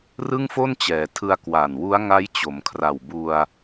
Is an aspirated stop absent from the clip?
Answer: no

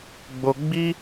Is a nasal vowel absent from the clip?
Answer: yes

